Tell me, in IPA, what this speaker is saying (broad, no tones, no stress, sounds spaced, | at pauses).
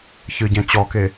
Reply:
ç ɨ ɟ ɛ̃ t͡ɕ ɔ k e